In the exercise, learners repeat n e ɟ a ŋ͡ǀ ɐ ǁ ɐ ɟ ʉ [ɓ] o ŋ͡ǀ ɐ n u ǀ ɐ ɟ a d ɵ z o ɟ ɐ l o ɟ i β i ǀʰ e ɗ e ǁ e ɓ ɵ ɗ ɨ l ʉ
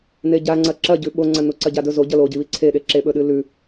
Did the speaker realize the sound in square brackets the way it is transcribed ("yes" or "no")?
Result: yes